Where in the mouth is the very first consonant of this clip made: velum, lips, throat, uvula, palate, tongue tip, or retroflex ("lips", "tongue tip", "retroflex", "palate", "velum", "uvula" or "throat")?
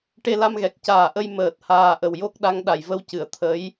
retroflex